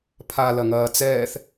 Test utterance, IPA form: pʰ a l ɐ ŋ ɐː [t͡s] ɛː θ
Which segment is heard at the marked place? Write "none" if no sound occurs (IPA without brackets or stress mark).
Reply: t͡s